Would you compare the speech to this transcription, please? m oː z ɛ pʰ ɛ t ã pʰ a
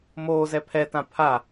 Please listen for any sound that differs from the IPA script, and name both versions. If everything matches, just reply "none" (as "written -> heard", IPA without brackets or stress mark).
none